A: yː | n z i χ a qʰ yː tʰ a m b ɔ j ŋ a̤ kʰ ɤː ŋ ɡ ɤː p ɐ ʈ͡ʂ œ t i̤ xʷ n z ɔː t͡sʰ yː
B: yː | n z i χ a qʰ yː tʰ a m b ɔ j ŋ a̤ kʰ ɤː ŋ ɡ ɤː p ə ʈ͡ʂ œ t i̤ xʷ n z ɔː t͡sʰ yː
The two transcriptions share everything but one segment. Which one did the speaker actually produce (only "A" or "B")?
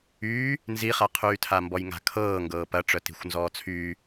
A